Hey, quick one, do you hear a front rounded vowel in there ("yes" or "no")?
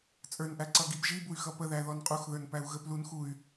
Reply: yes